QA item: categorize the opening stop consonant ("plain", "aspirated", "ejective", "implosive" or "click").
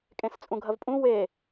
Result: ejective